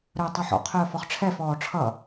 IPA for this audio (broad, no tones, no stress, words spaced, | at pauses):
ɾœːtˤœħɔ̰ qʰœːfɔχʈ͡ʂʰɛf ɔːʈ͡ʂʰʌ